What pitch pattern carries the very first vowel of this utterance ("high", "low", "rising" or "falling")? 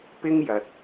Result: high